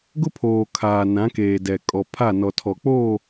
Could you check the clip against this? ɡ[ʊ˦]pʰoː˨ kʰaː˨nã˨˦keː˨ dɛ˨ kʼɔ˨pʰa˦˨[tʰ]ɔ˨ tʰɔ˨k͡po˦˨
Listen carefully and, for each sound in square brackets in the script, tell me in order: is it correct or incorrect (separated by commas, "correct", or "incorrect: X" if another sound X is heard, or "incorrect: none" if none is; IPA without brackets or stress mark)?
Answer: correct, incorrect: n